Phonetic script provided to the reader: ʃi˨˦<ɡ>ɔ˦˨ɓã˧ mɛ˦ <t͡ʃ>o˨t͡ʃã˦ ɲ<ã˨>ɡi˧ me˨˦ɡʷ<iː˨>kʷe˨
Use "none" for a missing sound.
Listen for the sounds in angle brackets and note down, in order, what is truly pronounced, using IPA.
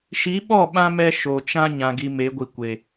ɓ, ʃ, ã˨, i˨

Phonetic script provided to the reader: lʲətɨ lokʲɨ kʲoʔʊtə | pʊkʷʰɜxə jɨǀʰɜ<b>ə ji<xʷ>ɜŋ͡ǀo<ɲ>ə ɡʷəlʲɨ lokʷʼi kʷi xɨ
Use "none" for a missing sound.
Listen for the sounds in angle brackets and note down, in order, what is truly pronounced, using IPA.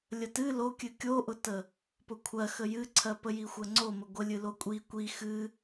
p, xʷ, m

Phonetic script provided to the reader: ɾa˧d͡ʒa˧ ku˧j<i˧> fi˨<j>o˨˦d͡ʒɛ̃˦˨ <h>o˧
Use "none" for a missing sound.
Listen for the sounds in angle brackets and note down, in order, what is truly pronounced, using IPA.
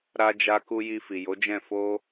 i˧, j, f

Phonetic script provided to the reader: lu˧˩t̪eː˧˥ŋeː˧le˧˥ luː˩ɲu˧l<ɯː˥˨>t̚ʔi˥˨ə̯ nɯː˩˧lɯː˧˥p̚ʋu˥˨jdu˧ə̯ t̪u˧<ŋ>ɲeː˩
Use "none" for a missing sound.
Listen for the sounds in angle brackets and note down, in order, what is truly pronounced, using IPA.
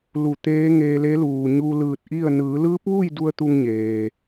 ɯː˧˩, ŋ

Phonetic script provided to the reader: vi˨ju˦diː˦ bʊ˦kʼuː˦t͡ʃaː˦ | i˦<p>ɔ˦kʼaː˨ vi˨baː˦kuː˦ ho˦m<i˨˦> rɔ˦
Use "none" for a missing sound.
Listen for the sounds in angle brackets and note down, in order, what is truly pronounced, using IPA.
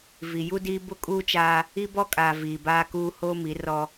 b, i˨˦

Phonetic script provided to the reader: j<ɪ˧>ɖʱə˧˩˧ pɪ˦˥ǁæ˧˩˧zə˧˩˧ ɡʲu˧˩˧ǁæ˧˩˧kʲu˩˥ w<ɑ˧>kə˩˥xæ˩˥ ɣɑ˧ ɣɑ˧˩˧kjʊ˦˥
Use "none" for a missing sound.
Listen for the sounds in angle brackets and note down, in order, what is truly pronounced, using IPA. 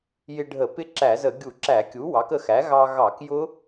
ɪ˧, ɑ˩˥

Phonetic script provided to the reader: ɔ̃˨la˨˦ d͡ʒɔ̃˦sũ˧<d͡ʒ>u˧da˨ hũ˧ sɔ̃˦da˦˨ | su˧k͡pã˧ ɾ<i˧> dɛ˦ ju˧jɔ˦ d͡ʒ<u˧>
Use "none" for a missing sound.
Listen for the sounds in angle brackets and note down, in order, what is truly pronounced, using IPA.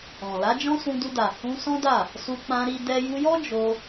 d, i˧, o˧

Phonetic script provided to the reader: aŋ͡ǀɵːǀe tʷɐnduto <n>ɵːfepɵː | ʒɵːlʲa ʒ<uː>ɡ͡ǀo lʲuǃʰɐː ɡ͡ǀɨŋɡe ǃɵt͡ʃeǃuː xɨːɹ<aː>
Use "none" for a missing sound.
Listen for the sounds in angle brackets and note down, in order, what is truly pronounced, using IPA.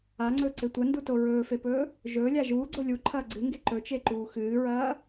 ɹ, uː, ɐː

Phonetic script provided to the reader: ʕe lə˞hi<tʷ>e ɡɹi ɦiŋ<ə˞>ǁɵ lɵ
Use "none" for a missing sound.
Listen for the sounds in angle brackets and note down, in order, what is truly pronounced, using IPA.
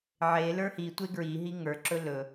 tʷ, ə˞

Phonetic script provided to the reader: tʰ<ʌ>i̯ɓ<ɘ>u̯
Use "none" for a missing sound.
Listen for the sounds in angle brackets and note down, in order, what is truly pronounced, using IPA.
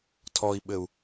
ɔ, ɘ

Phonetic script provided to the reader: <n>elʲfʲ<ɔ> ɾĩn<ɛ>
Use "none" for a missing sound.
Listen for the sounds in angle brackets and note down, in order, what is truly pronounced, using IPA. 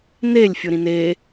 n, ɵ, e

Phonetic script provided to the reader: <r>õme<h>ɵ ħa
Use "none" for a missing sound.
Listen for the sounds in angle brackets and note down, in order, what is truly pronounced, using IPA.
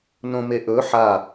n, ʔ

